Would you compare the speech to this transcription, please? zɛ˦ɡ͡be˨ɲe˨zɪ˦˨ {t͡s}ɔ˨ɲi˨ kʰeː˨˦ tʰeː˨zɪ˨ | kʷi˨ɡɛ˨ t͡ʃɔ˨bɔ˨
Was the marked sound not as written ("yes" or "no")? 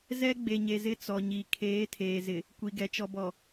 no